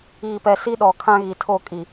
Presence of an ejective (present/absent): present